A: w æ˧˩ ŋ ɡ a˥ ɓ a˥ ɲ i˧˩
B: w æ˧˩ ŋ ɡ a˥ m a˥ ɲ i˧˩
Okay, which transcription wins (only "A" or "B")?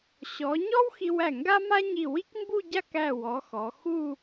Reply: B